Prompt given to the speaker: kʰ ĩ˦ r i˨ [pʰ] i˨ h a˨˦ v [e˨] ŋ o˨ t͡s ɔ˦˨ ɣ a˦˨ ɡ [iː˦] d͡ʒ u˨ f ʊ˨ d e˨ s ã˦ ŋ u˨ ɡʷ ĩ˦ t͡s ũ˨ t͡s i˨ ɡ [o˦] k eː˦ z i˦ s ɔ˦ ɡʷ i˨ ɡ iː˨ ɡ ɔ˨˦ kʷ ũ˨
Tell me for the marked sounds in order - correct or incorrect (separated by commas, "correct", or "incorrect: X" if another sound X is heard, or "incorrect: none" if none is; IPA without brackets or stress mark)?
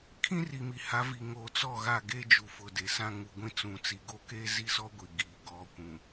incorrect: m, incorrect: i˨, incorrect: eː˦, incorrect: o˦˨